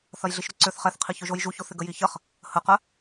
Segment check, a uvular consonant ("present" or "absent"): present